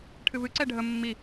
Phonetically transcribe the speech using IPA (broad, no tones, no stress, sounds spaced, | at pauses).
ʈʰ ɨ v ɨ ǀ ɛ ɖʱ ə mː i